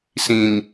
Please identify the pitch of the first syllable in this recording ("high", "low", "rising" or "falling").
low